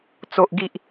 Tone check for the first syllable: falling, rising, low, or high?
low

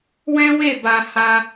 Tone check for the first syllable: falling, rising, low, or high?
high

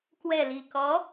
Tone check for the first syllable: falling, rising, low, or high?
low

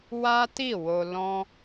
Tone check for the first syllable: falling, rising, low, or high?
high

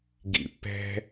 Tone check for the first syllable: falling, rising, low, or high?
low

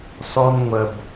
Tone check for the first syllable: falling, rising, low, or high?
high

